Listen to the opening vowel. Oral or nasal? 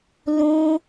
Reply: nasal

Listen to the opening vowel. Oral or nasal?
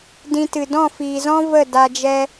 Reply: nasal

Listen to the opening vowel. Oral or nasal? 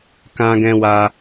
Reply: nasal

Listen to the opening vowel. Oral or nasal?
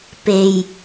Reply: oral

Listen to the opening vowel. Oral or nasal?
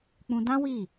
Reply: nasal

